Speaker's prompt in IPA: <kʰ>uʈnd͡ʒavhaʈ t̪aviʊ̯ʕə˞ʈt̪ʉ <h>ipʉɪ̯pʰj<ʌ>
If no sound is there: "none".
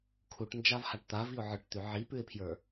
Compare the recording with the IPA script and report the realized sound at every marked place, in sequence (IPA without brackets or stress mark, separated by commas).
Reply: kʰ, ʕ, ə˞